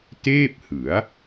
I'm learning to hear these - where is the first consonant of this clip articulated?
tongue tip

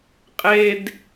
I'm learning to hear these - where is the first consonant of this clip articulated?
uvula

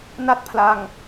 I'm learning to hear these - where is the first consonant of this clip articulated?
tongue tip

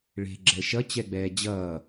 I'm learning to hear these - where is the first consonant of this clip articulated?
retroflex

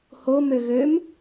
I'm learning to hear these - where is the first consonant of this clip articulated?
throat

